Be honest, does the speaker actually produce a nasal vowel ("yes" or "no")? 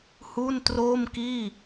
no